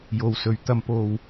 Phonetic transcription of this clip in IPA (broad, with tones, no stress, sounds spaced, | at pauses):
j o˨ w s ɵ˨ ɥ t̪ ɐ˧ m p o˧ w